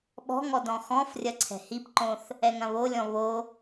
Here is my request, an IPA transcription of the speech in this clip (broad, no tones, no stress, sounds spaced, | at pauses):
ɓ ɔ̤ ŋ ɔ d ɔ̃ x ɔ̃ f rʲ ɐ ǀʰ ɛ̤ h i p ǃ õ θ | ɛ ŋ ɐ̃ β o lʲ ɔ̃ β o